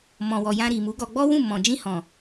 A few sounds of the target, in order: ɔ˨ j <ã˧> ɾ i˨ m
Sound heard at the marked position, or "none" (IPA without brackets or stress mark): ã˧